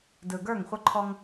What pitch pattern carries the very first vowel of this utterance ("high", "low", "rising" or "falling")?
low